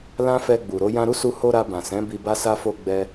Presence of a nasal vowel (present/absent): present